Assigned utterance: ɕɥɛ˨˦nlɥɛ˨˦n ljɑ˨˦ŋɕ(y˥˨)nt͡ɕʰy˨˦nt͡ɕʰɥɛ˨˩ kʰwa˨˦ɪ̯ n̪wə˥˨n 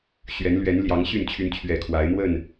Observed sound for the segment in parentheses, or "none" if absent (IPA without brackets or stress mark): y˥˨